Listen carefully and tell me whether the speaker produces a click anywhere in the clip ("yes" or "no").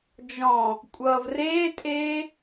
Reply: no